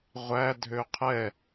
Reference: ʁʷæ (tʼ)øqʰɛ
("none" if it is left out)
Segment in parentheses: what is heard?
dʱ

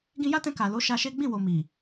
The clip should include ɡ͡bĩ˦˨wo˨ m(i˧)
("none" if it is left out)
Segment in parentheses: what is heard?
i˨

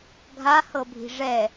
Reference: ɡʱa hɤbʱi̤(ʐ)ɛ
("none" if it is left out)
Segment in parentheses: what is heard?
ʐ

